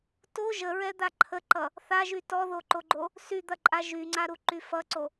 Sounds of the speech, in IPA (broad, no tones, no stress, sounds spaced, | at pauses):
t o ʒ ə ɹ ɛ d̪ a ǃʰ ə ǃ ʌ | θ a ʒ y t ɔ ð o ǃ o ɡ͡ǃ o | s y d̪ ɐ ǃʼ a ʒ y ŋ͡ǀ a ɾ u ǃ y f ʌ ǀ o